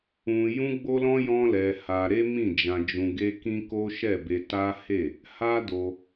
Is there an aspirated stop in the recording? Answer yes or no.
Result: no